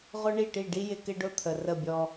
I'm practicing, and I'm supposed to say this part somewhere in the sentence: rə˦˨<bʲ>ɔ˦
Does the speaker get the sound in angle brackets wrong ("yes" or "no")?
no